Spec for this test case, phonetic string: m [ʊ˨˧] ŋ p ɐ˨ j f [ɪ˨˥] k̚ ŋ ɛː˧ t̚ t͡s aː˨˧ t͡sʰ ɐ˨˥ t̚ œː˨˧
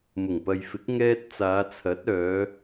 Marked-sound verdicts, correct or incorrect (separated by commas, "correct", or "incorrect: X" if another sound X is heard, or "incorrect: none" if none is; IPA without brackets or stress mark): incorrect: ʊ˨˩, correct